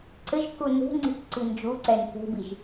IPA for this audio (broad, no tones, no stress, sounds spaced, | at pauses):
ǀ ɘ ʒ k u n ṳ ŋ͡ǀ i̤ k ǀ i n d͡ʒ u ǀ ɛ n k e̤ b i ʒ